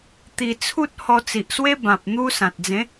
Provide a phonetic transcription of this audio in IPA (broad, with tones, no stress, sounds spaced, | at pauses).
t̪ i˧ t͡sʰ u˦ t̚ h ɔ˧ t͡s i˨ ʔ s w e˦ b ã˨ p̚ n̪ u˦ s ã˨ t̚ d͡z ẽ˨˦